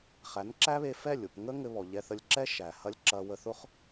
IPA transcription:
χ æ˨˦ n ǁ æ˦ β e˧ f ɛ˦˨ lʲ ʊ˦˨ p ŋ ə˦ ŋ ɘ˧ β ɔ˨ ʎ ɛ˧ θ ə˧ lʲ ǁ ɛ˦ ʃ æ˨ h ɐ˦ lʲ ǁ ɐ˧ w ə˧ θ ʊ˦ χ

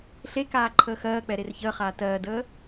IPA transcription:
ɬ e k aː ǃʰ əː x ɜː k͡p ɛ ɾ e r ç əː χ aː t ɜː d əː

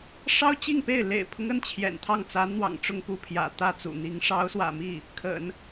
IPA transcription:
ʂ ɑ˥ ʊ̯ t͡ɕ i˥˧ ŋ p e˥˩ ɪ̯ l ḛ˨˩ ɪ̯ pʰ ʊ˦ ŋ ə˥˩ n t͡ɕʰ j ɛ̰˨˩ n t̪ʰ ɑ˥˩ ŋ t͡s a˧˥ n n̪ w ɑ̰˨˩ ŋ ʈ͡ʂ ʊ˥˧ ŋ p u˥˩ pʰ j ä̰˨˩ t̪ ä˥˩ t͡s ṵ˨˩ n̪ i˧˥ ŋ ʂ ɑ˧˥ ʊ̯ s w ä̰˨˩ m i˥˩ | kʰ ə̰˨˩˦ n

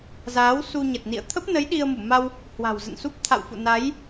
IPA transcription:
z aː˨˦ w s u˧ ɲ ə˨˩ t̚ n ḭ˧˨ ə̯ t̪ʰ ə˦˥ p̚ n ə˨˦ j ɗ i˧ ə̯ m u˧˩ m a˧ w | h w a̤˨˩ w z ə̰˧˨ n s u˦˥ p̚ t̪ʰ a̰˧˨ w f ṵ˧˨ n a˨˦ j

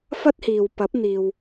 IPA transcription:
f ɐ˥ t̚ h iː˨ w p ɐ˨˥ p̚ n̪ iː˨ w

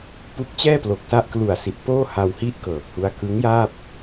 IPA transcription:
p u˦˥ k̚ t͡ɕ ɛː˥˩ p l o˨˩ k̚ s a˦˥ ʔ k l u˨˩ a̯ s i˨˩ t̚ p oː˥˩ h a˧ w h i˥˩ ʔ k ɤː˨˩ k̚ h u˦˥ a̯ k ɯ˦˥ ŋ j aː˥˩ p̚

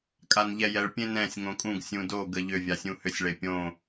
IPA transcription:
kʼ a n ʎ ɛ j ɛ ɭ pʲ ẽ n ɛ̃ sʲ ŋ õ kʼ ũ ɡ sʲ ũ d o ɡ ə ʎ ʏ vʲ a sʲ ũ h ʏ sʲ ɭ e pʲ õ

